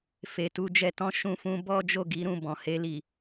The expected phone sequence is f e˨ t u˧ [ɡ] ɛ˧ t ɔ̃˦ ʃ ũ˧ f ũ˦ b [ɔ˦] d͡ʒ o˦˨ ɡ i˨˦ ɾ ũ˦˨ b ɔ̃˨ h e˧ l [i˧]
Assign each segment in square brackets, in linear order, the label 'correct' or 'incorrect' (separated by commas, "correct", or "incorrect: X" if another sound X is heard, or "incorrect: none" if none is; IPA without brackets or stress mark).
incorrect: d͡ʒ, correct, incorrect: i˨